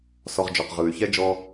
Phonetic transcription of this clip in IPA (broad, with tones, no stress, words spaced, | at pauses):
sɔ˨ʁd͡ʒɔ˩q ʁɯː˩y̯çɛ˥ d͡ʒɔː˦